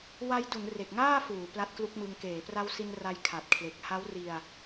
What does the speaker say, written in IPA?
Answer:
wa˦˥jdu˩˦n re˨˩k̚ŋaː˥˩fuː˩˦ pla˦˥t̚klu˦˥k̚mɯ˧ŋ keː˩˦pra˦˥wsi˧nra˧j kʰa˨˩t̚kʰle˨˩k̚ ha˦˥wri˧a̯

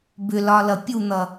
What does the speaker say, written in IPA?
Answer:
bʏlɒlʌ pʲun̪ʌ

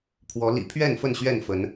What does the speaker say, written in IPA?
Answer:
pʰwɔ˨˦ lḭ˨˩pʰɥɛ˥˨n fə˥˨nɕɥɛ˥˨nfə˨˦n

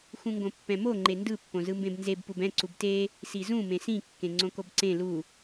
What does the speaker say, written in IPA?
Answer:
xũŋɡõpːɛ̃mo ŋ͡ǃendɯ pːõzɯmbẽbnzeb pubɛ̃ ǀubte | sizũ mẽsĩ kːẽŋ͡ǀõkobǀẽ lu

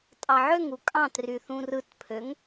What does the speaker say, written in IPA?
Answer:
tʼɑʕøŋu kʼɑ̃try θũrɯtpʰøŋ

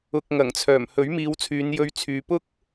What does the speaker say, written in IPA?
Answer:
ʊ˨k̚ ŋɐ˨˩ŋt͡sʰœː˨˩m hɵ˨˥ɥmiː˨˧wt͡sʰyː˨˧njɵ˧ɥ t͡sʰyː˨˧pʊ˥k̚

